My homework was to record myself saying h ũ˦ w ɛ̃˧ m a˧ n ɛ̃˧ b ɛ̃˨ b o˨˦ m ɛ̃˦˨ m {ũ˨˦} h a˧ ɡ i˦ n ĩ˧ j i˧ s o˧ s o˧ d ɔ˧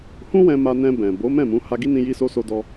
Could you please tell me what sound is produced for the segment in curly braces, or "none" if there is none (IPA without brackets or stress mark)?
ũ˨˦